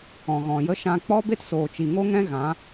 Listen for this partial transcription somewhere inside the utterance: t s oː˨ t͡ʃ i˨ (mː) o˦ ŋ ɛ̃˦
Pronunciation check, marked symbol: incorrect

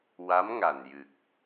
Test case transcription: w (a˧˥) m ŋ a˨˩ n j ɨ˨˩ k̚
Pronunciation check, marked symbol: correct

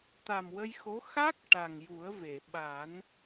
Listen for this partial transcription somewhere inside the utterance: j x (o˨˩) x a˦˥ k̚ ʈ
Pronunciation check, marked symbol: incorrect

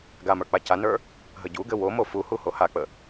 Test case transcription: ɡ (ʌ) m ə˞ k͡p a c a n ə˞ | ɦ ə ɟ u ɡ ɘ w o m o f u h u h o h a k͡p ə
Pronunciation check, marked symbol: incorrect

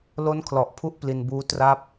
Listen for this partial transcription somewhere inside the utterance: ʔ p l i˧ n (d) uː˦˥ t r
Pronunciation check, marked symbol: incorrect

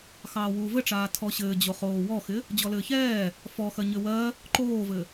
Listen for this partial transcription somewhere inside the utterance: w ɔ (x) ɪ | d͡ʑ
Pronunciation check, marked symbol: correct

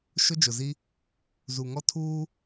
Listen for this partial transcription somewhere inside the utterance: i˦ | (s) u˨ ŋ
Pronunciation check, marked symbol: incorrect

